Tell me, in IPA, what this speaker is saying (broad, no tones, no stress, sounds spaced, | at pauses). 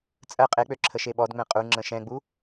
t͡sʼ ɜ qʼ e k͡p ø ǁʰ ə ʃ e ɓ ɔ d ŋ͡m ɛ̃ qʼ u ŋ͡ǁ ə̃ ʃ ɛ̃ ɡ͡b u